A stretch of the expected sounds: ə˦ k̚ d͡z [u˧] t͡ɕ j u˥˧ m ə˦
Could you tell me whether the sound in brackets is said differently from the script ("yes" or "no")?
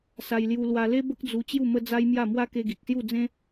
no